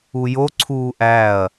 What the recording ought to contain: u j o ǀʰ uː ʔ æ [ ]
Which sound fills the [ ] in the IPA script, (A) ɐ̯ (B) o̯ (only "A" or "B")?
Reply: A